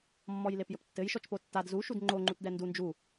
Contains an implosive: no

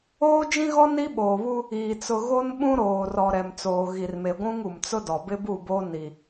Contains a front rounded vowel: no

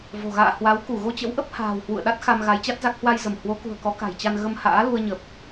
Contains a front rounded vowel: no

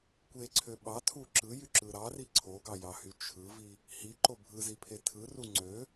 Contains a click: yes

